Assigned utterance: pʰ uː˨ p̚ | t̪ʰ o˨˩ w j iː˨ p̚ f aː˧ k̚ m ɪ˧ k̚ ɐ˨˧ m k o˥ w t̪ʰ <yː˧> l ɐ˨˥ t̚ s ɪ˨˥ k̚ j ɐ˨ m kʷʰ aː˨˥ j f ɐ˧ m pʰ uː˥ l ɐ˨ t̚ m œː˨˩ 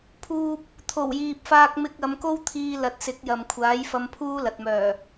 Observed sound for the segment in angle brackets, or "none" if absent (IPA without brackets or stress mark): iː˧